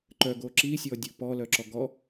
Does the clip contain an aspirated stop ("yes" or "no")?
no